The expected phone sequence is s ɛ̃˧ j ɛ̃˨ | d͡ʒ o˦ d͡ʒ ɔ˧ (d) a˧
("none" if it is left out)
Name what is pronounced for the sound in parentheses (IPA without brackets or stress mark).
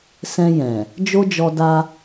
d